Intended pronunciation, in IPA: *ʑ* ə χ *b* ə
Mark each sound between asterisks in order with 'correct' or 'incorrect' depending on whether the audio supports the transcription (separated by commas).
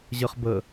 correct, correct